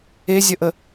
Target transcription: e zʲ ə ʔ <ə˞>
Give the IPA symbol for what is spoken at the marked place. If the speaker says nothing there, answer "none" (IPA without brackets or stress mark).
ə